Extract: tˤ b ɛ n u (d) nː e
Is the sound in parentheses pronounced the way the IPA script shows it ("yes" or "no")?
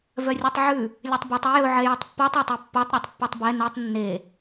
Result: no